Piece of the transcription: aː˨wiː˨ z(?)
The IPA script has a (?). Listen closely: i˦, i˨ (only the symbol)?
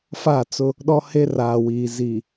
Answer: i˨